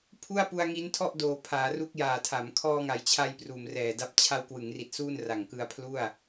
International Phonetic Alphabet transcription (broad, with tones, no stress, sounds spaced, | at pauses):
pʰ u˥˩ a̯ p u˧ a̯ ŋ i˦˥ n tʰ ɔ˥˩ ʔ d oː˨˩ pʰ aː˩˦ r u˦˥ k̚ j aː˨˩ tʰ a˩˦ m kʰ ɔː˧ ŋ a˩˦ j t͡ɕʰ a˧ j p r uː˨˩ m r ɛː˨˩ d a˦˥ p̚ t͡ɕʰ a˧ w k w ɯ˩˦ ŋ r i˨˩ t̚ s uː˥˩ n r a˨˩ ŋ k ɯ˧ a̯ pʰ l u˥˩ a̯